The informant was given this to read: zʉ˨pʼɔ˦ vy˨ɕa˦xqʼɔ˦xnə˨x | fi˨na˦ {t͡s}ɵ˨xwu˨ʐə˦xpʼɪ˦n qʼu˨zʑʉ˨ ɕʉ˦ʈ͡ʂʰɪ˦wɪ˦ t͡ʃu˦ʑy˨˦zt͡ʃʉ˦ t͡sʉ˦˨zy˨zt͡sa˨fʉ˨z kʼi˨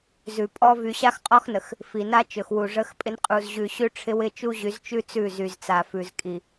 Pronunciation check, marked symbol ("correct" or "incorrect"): incorrect